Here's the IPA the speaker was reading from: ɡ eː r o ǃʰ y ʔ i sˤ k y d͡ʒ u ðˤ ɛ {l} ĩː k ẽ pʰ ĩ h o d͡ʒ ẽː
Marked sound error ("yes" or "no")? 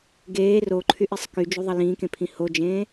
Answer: no